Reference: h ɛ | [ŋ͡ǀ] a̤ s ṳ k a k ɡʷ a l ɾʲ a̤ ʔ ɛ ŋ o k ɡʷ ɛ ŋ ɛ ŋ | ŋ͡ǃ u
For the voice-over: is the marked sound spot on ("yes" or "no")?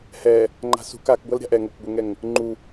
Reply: no